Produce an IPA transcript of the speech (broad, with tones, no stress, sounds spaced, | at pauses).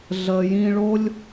ɮ əː˨ j ĩ˧ ɭ o˦ lʲ